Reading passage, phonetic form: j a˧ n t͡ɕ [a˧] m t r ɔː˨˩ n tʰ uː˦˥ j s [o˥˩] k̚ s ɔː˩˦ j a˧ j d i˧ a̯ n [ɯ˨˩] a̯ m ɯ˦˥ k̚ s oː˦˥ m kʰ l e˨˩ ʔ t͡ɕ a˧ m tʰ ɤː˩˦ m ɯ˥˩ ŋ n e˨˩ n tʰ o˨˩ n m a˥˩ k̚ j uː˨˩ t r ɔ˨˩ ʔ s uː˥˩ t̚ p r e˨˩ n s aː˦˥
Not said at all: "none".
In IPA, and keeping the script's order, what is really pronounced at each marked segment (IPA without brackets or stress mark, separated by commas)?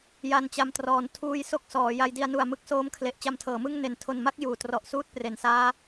a˧, o˦˥, u˨˩